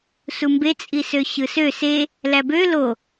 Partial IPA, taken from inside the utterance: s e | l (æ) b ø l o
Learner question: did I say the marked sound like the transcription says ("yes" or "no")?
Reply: yes